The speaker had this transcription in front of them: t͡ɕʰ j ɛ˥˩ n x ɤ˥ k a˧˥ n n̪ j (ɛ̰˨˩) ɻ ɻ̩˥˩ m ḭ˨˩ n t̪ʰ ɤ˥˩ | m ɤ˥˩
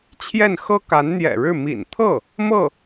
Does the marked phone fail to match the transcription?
no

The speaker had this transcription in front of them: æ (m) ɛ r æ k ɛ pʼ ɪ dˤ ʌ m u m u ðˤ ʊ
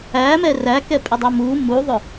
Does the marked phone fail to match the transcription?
no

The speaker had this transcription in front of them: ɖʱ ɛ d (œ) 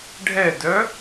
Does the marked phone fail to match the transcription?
no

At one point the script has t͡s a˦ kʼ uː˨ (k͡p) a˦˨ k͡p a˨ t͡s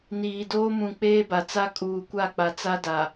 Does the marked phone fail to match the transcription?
yes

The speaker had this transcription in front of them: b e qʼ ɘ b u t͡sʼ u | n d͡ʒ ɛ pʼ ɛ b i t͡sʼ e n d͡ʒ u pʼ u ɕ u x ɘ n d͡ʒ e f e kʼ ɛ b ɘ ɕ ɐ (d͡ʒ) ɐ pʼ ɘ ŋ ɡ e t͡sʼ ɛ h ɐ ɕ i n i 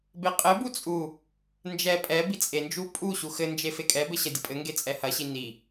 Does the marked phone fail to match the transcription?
yes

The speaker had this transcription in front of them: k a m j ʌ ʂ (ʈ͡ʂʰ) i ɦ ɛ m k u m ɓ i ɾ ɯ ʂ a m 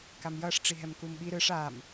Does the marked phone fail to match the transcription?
yes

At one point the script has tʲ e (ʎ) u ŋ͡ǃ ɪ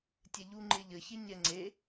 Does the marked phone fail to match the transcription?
no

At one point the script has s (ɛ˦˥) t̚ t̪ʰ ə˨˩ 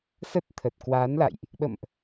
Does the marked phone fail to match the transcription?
yes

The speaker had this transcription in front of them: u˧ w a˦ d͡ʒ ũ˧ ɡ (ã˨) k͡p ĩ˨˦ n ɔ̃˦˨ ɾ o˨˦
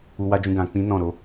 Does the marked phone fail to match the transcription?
no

